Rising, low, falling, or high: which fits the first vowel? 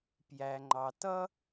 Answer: low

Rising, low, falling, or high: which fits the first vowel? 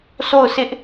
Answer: falling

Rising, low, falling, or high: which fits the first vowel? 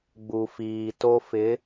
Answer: low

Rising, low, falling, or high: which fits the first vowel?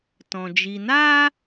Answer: low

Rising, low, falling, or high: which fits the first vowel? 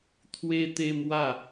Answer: high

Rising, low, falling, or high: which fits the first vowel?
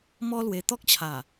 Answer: high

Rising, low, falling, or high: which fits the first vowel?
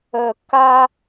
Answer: low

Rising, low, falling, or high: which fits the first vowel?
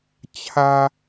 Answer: low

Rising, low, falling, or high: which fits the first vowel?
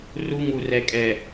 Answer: high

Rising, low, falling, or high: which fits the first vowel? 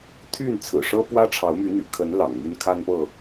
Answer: falling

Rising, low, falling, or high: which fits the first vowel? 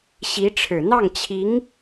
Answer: rising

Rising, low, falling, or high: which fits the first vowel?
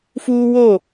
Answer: high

